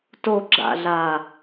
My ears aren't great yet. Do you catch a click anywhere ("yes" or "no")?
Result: yes